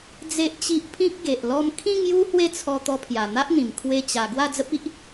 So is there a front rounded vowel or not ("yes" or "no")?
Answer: no